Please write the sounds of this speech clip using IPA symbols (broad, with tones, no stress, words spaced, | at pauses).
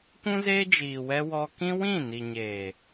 kʷũ˦zeː˦ d͡ʒiː˨wɛ˧ wɔ˧kĩ˦wĩ˦˨ ni˨ɲeː˨